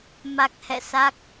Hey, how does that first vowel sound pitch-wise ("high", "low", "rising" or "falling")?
low